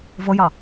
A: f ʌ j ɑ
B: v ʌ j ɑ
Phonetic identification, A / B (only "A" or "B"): B